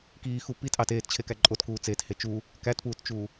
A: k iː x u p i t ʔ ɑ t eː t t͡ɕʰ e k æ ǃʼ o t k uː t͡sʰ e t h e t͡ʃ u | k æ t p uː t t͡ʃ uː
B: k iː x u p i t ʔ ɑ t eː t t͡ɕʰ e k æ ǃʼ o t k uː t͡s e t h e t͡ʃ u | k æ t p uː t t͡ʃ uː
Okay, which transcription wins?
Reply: B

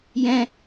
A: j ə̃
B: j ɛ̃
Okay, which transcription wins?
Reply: B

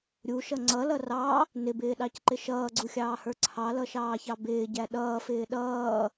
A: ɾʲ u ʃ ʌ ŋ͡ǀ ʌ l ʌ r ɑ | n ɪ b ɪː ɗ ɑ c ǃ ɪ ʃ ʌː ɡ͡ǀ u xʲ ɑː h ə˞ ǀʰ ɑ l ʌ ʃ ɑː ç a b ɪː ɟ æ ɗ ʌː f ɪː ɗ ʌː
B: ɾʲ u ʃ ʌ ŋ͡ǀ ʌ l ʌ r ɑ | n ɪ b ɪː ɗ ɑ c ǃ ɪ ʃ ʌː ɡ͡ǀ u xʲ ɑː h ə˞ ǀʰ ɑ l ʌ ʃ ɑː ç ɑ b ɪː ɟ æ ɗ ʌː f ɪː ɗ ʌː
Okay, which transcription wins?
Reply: B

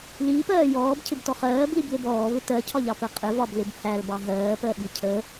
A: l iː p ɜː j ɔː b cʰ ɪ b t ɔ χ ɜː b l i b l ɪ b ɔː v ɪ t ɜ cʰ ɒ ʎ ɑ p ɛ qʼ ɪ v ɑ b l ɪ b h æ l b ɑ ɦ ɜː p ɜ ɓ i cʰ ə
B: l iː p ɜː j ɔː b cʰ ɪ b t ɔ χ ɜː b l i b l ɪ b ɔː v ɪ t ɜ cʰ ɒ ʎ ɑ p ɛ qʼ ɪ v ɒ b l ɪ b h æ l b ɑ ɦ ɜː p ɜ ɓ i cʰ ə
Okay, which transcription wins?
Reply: B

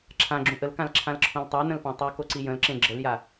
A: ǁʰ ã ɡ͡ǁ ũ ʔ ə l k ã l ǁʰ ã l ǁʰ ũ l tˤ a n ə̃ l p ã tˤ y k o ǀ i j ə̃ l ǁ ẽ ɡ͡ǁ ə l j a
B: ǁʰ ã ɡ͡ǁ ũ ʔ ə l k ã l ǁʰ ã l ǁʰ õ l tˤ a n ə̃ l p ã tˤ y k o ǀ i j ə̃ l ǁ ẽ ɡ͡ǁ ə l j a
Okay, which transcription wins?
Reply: B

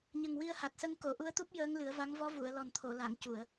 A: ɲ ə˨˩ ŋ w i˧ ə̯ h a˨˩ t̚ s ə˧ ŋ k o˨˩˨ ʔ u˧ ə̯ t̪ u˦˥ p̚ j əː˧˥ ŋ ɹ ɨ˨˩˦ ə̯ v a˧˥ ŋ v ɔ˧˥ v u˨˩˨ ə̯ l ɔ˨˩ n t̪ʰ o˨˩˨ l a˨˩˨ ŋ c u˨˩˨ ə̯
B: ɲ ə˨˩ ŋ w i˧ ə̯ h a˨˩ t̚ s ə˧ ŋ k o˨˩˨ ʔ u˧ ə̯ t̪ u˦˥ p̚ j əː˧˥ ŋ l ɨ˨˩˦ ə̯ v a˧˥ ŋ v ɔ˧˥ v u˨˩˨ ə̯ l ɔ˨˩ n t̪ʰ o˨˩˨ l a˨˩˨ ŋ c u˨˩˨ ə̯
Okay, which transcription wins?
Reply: B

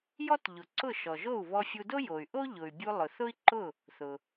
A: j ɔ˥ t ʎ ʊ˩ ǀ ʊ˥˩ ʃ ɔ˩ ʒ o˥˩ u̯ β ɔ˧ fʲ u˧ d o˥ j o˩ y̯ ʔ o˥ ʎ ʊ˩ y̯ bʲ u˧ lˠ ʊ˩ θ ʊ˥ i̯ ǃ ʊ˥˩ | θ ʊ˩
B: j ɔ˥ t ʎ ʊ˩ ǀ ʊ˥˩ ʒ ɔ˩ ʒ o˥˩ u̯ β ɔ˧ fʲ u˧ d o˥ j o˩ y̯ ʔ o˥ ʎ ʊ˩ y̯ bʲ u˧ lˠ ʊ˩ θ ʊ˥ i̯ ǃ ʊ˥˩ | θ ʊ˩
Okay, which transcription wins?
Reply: A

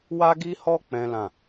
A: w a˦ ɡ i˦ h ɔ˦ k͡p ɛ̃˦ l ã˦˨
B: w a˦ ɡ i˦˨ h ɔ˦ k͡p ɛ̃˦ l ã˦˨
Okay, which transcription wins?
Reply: A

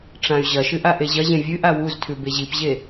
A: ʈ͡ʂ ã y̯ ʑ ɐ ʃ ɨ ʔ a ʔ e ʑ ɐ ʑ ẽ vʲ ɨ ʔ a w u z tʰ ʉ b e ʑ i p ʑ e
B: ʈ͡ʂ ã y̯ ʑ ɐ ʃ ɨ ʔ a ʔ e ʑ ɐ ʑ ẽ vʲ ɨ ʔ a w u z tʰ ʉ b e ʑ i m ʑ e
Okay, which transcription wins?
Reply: A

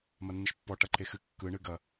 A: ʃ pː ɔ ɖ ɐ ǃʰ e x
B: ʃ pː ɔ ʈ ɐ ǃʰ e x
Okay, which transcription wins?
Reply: B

